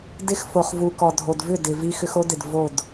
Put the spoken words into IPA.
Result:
d ɪ˦ x f o˨ χ v u˨ k ɔ˨ dʱ o˨ d v ʏ˦˨ d ɪ˨ v i˦ x ʏ˦ x o˦ d ɪ˨ d v o˦˨ d

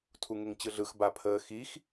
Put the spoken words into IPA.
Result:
tʰ u ŋ e ŋ t͡ɕ ɯ ɮ ɯ x b a pʰ əː x i x

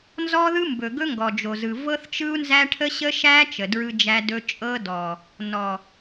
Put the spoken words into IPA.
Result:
n z ɔ˦ ð ɯ˦ m b ɵ˨ ɡ ɵ˦ ŋ ɡ ɔ˨ d͡ʒ o˨ z ɯ˨ v ɤ˦ θ t͡ʃ ɯ˦ u̯ n z æ˦ ʈʰ ə˦ ɕ ə˦ ʃ æ˦ t͡ʃ ə˨ d ɹ ɯ˦ d͡ʒ æ˦ d ɵ˦ t͡ʃʼ ɤ˦ d ɔ˨ | n ɔ˨

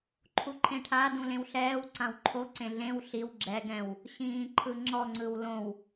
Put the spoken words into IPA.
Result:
ǃʰ u ǃʰ ẽ ʈʰ a d ũ l ẽ w ɬ ɛː w ǀ ã w ǃʰ o ǀ ẽ ɮ ẽ w ɬ i w ɡ͡ǁ ɛ ɡ ɛ̃ w | ɕ ĩː ǃʰ ɯ ŋ͡ǁ ɔ ŋ͡ǀ ɯ w l õ w

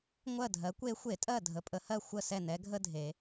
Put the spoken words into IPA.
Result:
ŋʷ ɜ˥˨ dʱ ɜ˩˥ kʷ e˧˥ xʷ e˧˩˧ tʼ ɜ˥˨ dʱ ə˩˧ pʼ ə˩˧ h ɜ˥˨ xʷ ə˥˨ s ɛ˥˨ n ɛ˧˥ ɡʱ ə˥ dʱ e˩˧

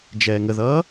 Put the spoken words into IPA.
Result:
d͡ʒ ɛː ŋ ə ð ʌː

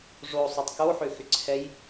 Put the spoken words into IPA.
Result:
ʐ o sˤ o tˤ k o ħ ʏ x ʏ ǀʰ ɛ j

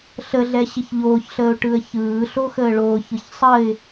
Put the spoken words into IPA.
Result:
ɬ ə ɮ ɛ ɕ ɪ ç ʎ oː ç ɬ əː ʊ̯ ʈ ɯ ə̯ ç ɯː ɬ o x əː ɭ oː ç ɯ ç sˤ ə ɪ̯

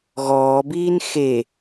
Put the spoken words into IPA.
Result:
ɣ ɔː b iː n x e

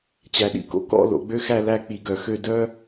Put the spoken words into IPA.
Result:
t͡ɕ æ˧ ɗ ḭ˥ k o̰˧ k ɔ̰˥˧ l o̰˩˧ ɡ͡b ø˥ x æ˥˧ l æ˥˧ k͡p i˧˩ ɡ œ˧˩ x ø˥˧ d œ˥

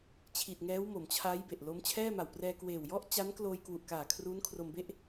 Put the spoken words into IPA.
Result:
t͡ɕʰ i˨˩ t̚ ŋ ɛː˦˥ w m o˩˦ m t͡ɕʰ aː˦˥ j b e˨˩ ʔ l o˦˥ m t͡ɕʰ ɛː˥˩ m a˨˩ w p r ɛː˧ k w eː˨˩ w j ɔ˥˩ ʔ t͡ɕ a˦˥ n k l oː˧ j k w u˨˩ ʔ k aː˨˩ kʰ r uː˦˥ n kʰ r o˧ m b e˥˩ ʔ

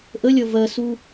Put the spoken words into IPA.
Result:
ʔ ə lʲ ʌ v ɜ s u

